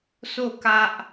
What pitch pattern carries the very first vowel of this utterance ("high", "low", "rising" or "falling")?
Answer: falling